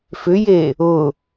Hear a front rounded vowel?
yes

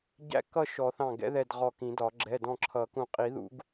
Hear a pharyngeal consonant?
no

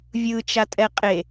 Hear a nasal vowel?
no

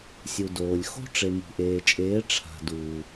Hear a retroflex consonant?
yes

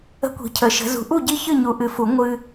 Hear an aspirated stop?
yes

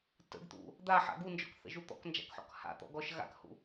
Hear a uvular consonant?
no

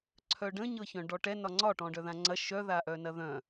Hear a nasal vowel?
yes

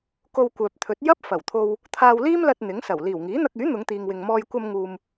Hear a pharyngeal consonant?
no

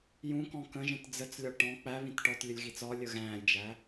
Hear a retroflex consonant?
yes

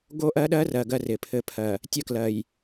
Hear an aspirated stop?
yes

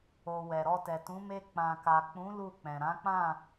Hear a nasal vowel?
yes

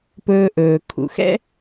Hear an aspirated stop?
yes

